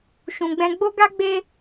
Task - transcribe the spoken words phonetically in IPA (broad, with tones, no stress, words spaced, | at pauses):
ʃũ˨ɡ͡bɛ̃˧ ɡ͡bo˦ɡa˦ɡ͡be˦